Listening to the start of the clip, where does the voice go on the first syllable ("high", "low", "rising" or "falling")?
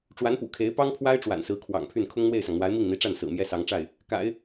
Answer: rising